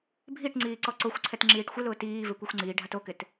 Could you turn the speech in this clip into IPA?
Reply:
bʱiʈŋ͡ǀiː ǀɔǀoxʷǀʰɛt ŋ͡ǁiːʈxʷɪlʊː tiːve kʷɛxʷŋ͡ǀiːɖʱat okɪt

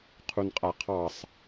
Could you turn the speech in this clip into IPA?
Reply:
qʰunqʼaqʰɑsˤ

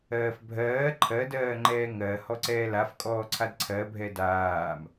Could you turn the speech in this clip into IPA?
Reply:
ɜːfbʱɜː ǃʰɜdɜːŋ͡ǃɛː ŋɜhɔ ǀɛːlafkʼɔː ǀʰadǀʰɜbʱɛ daːm

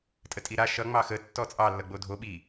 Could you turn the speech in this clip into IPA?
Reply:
tʼətʼiɾa ʃʌ ŋ͡mɑxə tːɔt͡sʼɑ lːʌɡ͡bodʱo ɓi

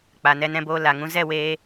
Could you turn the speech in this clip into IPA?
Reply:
k͡pa˨nɛ˧nɛ̃˧boː˧ la˨ŋũ˧ zɛ˦˨weː˧

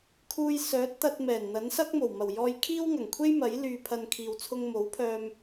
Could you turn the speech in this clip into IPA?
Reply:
kʰuː˧jsœː˨˥t̚t̪ɐ˧t̚ mɛː˨˩nn̪ɐ˨˥nsɐ˥k̚ mo˨˩wmɐ˨˩wjɔː˧j kʰiː˥wŋɐ˨˩ŋkʷʰe˥jmɐ˨˥j lyː˧pʰɐ˧nkʰiː˨w t͡sʰʊ˧ŋmo˨˥wpʰœː˧m

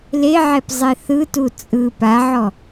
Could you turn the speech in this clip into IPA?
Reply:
leʕɛp zˤeθɯtu t͡sʼɯ paʕɔ

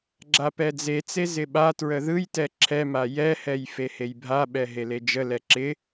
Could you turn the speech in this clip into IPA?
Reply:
ɡ͡ǁapɛd͡zet͡se zɪɓatɹə ðɯjtɛ ǁʰɛma jɛhɛj fehejbʱaɓɛ ɦeled͡ʒəlɛ ǁɪ

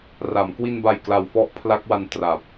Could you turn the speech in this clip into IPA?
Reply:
ra˩˦m kwi˧nba˨˩j kla˨˩wfɔ˦˥ʔpʰla˦˥k̚wa˧n tra˨˩p̚

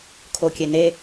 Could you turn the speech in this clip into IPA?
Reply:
kʰokʲene

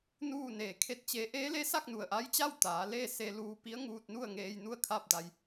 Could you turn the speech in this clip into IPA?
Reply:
nuː˥˨neː˧˩kʰe˥˨t̚t͡ɕe˧˥ ʔeː˧˥le˧˥sa˥˨k̚ nu˩ə̯ʔa˧˥jt͡ɕa˥˨w t̪aː˩˧leː˥˨se˧ luː˧pi˧˥ə̯ ŋuː˧t̚nu˥˨ə̯ ŋeː˧jnu˥˨ə̯kʰa˥˨p̚da˧j

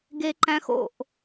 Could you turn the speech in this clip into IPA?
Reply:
ɡeǃæ̃xo̰ʔ

